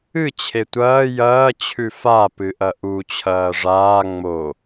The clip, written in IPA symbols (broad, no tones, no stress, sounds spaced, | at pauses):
ɨ t͡ɕʰ e tʷ ɐː j ɐː t͡ɕʰ ʉ f a p ɨ ʔ ɐ ʔ u t͡ɕʰ ɐː ʐ aː ŋ͡m o